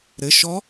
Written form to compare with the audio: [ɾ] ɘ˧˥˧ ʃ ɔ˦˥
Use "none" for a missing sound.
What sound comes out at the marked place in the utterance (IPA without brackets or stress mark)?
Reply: ɾ